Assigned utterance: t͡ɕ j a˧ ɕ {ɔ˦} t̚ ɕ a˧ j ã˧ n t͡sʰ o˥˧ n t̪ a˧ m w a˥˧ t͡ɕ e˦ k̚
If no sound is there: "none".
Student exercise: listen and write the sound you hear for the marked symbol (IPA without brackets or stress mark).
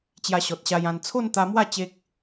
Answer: ɔ˨